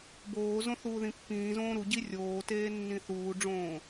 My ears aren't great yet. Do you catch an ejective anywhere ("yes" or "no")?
no